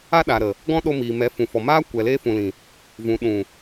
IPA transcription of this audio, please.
a˦ ɗaː˨ɾə˨ | ɡɔ̃˦ɗo˧miː˨mɛ˨˦ fũ˨fɔ˨maː˦ kʷɛ˨leː˧fũ˨lĩ˨ | vũ˨ɗũ˨

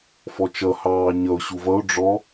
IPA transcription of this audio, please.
fɔt͡ʃʌ hɑːɲʌʊ̯ ɕuvʌʊ̯ ɖ͡ʐɔ

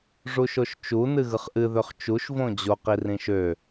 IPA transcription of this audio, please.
ʐuʃoʃt͡ʃu nɨɣɯχʔɨ ðøχt͡ʃuʃ võd͡ʑo qirĩʃø

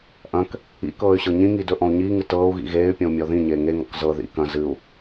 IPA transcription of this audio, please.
ʔɐ̃k | ḭ kɤːy̯ɕɤɲĩŋi dɵʔɔ̃u̯ɲiːŋɨ tɤːu̯ɣḭ ɣeːy̯ pʲɔ̃u̯mʲɔðĩɲeː ŋeŋɔ̰k zɤ ðḭ kɐ̃ zɨu̯

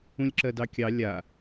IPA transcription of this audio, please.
ũlʲǁɜdɑkʲɑ lʲa

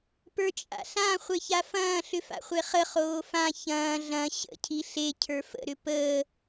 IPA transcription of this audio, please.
pə˞t͡ʃʼa̰ɬã χʷeçafɐ̃ː ɬʏfa̰χʷeχə χoːfã çɐ̃ː ɮɐ̃ ɕə̰ cʰiɬe cʰə˞fə̰ ɾʏpəː

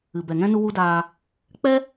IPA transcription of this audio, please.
ɨ˨bɛ˨ŋɛ̃˦ nu˦wu˦daː˧ | k͡pɛ˦

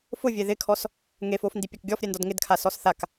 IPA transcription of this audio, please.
fʊvʲe ðɪkʰɔs | ŋefofndi pʲakɡʲɔf ɾʲɛndɔdŋɪdkʰa sɔsθak

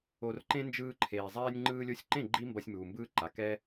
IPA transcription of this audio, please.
o˧rǃẽ˦nd͡ʒɯː˧ǃʰeː˨ zˤɛː˧nʲŋ͡ǃɯː˧lʲo˧sʲǃẽ˦˨ ɡ͡ǃi˦mbʌ˧sʲmuː˨ mbɯː˧ǃa˨ kɛ˦

